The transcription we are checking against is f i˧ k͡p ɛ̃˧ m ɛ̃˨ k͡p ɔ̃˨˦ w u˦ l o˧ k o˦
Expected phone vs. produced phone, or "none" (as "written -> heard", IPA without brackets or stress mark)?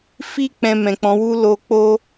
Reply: k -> k͡p